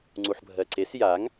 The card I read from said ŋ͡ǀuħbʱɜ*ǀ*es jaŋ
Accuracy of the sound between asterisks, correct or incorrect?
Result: correct